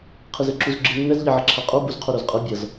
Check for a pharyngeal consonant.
present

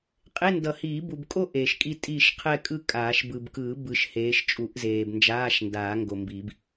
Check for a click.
absent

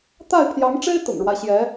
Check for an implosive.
absent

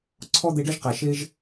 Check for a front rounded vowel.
absent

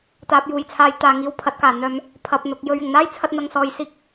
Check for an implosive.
absent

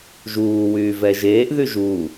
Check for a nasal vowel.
absent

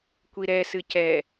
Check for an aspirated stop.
absent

